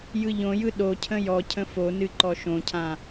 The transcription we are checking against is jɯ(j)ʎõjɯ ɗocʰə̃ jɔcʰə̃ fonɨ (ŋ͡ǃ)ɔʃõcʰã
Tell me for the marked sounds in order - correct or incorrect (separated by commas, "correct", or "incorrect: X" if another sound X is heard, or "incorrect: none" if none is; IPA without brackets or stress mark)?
incorrect: none, incorrect: ǃ